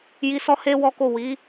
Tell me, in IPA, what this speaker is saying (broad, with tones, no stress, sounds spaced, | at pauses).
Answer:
j i˧ s ɔ˦ h e˦ w ɔ˦ k o˦˨ w i˨˦